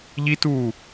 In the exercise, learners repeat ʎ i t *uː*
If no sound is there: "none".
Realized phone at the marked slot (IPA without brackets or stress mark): uː